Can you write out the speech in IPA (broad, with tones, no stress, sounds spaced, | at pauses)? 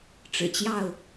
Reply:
ʈ͡ʂ ɻ̩˨˩ t͡ɕ j ɑ˥˨ ʊ̯